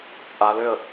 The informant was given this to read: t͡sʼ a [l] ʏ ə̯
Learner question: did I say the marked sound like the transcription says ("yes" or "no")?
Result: yes